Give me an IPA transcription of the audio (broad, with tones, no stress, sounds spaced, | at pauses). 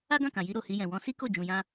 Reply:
a˦ ɡ ã˦˨ k ã˨ j i˧ ɾ o˨ h i˧ j ɛ̃˨ w ɔ̃˧ s i˦ k o˦˨ d͡ʒ ũ˧ j ã˦